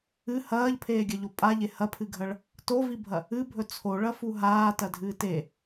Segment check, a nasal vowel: absent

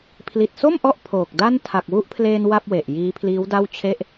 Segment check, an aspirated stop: present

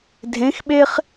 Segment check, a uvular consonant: present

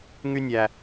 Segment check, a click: absent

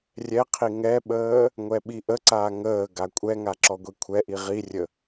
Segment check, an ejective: present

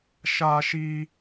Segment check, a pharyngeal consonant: absent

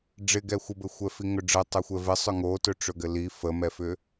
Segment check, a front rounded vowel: present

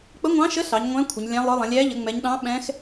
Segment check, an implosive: present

